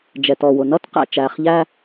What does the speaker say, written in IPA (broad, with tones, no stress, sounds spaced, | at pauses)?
d͡ʒ ɛ˨ t ɔ˨ w ʊ˨ n ʌ˦ t q æ̰˨ t͡ʃ æ˨ χ ʎ æ˦